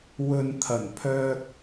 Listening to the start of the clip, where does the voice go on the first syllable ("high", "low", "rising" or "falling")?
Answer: low